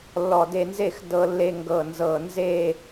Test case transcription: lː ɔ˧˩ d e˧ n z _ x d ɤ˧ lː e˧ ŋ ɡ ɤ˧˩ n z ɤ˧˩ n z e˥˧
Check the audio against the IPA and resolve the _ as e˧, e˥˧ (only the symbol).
e˥˧